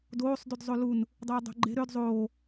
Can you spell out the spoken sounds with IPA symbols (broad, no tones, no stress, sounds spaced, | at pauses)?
d oː sˤ d y d zˤ o l u n | dˤ e j dˤ o̤ ɡ͡ǃ e̤ ɾ ø d zˤ oː